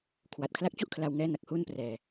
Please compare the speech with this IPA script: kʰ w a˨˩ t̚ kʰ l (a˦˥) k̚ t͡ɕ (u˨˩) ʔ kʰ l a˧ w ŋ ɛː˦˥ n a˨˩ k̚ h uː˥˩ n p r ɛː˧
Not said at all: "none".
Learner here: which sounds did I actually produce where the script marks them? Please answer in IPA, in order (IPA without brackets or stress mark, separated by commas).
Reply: a˦˥, u˥˩